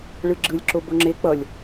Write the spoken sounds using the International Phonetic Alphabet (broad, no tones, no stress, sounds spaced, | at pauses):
ɭ ɯ ɡ͡ǁ ɯ lʲ ǁ o b o ŋ͡ǁ e k͡p ʌ lʲ